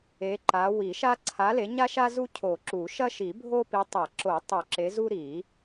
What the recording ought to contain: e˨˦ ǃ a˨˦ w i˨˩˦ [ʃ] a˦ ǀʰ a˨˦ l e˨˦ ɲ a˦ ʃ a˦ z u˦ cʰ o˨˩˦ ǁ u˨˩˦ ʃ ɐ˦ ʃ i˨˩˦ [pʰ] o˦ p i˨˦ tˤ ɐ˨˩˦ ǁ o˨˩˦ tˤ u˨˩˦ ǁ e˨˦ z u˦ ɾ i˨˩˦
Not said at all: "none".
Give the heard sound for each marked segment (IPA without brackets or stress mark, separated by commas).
ʃ, bʱ